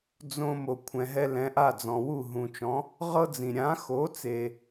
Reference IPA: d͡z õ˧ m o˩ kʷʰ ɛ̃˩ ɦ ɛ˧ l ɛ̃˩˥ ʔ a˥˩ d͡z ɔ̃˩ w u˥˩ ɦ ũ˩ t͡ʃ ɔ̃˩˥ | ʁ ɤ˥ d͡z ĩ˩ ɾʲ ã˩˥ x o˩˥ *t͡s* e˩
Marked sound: correct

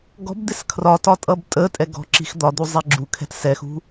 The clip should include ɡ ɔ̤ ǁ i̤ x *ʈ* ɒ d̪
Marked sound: incorrect: d̪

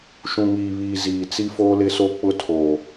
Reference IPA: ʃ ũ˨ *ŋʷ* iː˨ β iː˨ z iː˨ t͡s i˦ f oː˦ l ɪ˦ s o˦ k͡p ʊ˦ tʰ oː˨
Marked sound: incorrect: ŋ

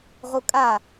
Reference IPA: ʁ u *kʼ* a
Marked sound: correct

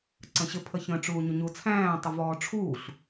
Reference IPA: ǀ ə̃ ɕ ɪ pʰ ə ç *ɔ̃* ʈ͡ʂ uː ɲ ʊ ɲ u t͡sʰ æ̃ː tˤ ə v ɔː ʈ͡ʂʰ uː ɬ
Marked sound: incorrect: ə̃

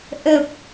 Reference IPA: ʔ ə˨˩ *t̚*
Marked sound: incorrect: p̚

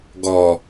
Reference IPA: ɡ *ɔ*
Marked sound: correct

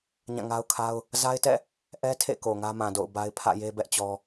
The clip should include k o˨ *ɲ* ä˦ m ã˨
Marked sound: incorrect: ŋ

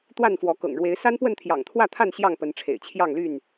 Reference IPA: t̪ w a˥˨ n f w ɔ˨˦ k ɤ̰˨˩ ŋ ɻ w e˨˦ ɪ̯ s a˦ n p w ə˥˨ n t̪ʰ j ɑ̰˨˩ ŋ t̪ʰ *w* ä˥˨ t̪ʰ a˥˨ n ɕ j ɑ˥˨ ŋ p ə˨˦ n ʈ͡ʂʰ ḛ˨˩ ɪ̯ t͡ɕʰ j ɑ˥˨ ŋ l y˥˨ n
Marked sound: correct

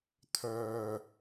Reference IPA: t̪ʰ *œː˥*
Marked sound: incorrect: œː˨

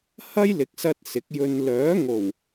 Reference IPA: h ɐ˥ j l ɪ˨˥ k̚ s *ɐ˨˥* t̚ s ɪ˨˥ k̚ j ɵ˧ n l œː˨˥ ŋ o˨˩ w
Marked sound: incorrect: ɐ˧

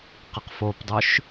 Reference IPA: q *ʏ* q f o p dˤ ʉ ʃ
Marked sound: incorrect: ə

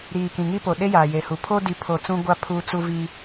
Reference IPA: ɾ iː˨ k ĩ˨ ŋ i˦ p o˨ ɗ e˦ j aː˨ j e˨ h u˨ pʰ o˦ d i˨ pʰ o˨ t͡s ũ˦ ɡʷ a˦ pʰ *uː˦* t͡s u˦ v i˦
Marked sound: correct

